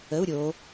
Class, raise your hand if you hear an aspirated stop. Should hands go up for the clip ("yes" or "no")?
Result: no